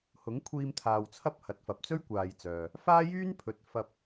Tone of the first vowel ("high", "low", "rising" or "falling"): rising